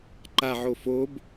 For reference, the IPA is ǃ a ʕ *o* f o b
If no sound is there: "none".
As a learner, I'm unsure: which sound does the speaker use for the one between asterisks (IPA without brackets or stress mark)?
o